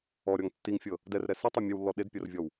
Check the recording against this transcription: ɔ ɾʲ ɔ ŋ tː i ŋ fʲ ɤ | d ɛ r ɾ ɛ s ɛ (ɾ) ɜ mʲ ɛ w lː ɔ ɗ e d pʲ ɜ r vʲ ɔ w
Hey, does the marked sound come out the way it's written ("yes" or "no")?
no